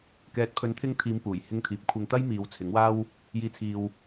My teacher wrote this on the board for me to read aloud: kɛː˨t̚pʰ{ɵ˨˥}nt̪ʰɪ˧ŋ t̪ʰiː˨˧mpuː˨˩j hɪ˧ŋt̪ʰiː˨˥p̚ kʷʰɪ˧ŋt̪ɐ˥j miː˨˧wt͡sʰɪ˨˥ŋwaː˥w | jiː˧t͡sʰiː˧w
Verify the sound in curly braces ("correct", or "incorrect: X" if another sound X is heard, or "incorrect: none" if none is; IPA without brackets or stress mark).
correct